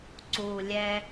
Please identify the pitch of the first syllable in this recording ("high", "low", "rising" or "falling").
low